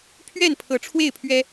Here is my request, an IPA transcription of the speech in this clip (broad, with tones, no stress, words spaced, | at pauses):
pʰɥɛ˥˨npʰɤ˨˦ ʈ͡ʂʰwe˥˨ɪ̯pʰɥɛ˦